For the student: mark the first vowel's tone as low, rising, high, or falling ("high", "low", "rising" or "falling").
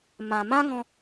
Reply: low